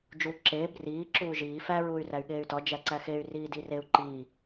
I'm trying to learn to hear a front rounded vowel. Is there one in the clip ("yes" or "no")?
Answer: yes